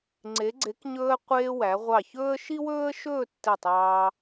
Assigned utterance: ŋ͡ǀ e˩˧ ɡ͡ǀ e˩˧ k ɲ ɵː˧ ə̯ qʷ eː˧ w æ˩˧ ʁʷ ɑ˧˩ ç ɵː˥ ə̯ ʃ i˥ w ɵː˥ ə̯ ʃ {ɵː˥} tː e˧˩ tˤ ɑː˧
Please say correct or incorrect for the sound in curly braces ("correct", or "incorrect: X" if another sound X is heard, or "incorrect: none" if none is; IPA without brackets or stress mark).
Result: incorrect: ɵː˥˧